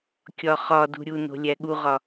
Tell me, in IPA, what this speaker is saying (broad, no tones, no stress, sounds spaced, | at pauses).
kʲ ɒ χ ɒ d ṳ ɾʲ u n o̤ lʲ æ ɠ u ʁ ɒ